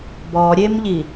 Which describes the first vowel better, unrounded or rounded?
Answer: rounded